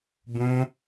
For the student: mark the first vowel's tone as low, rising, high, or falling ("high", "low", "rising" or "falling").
high